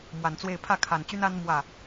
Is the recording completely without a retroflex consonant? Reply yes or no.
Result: yes